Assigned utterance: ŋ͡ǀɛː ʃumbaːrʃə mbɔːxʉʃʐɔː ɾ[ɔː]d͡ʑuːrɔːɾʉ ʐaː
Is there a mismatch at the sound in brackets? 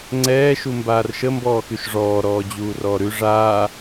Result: no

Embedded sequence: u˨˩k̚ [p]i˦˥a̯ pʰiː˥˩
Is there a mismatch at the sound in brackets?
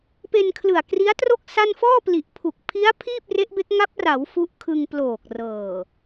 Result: yes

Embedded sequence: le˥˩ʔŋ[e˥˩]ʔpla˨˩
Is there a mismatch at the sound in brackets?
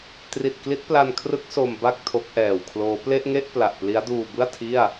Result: no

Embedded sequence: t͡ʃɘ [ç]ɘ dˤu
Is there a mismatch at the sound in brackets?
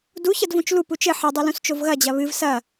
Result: yes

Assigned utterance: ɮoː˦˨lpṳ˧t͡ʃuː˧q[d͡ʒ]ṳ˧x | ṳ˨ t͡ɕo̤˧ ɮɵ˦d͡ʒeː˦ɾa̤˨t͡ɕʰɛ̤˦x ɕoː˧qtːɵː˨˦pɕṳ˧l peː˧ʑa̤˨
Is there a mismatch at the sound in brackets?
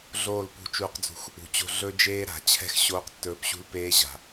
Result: yes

